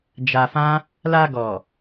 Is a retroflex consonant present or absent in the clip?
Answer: absent